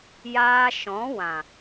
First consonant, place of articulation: palatal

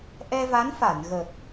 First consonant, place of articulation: glottal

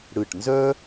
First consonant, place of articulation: retroflex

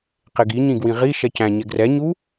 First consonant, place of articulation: uvular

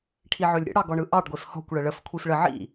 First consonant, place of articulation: retroflex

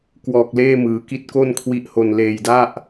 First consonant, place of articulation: velar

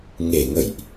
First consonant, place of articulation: velar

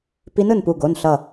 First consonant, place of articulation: labial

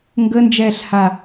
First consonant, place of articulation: velar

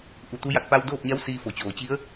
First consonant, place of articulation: glottal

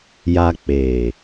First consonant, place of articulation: palatal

